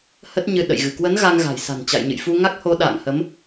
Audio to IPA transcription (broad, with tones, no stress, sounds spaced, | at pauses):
h ə˦˥ t̚ ɲ ɨ˧ ɗ ə̰˧˨ j ɣ ɨ˧˩ k w ə˨˦ n ɣ a˧ ŋ ɣ a̤˨˩ j s a̤˨˩ n t͡ɕ a̰˧˨ j ɲ ɨ̰˧˨ j f u˧ ŋ a˦˥ k̚ h o˨˦ ɗ a̰ː˧˨ ŋ h ə˨˦ m